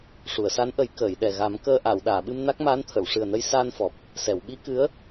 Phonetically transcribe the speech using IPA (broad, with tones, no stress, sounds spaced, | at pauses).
ʂ u˨˩˨ ə̯ s a˧˥ n ʔ ə˨˩˦ j k əː˨˩˨ j ɗ ɛ˨˩ ɣ a˨˩˦ m k əː˧ ʔ aː˨˩˨ w ɗ aː˨˩˨ ɓ ɨ˧ m n a˦˥ k̚ m aː˧˥ n t̪ʰ ə˨˩˨ w ʂ ɨ˨˩ ə̯ n ə˧ j s aː˧ n f ɔ˨˩ p̚ | s ɛ˨˩˨ w ɓ i˧˥ k ɨ˧˥ ə̯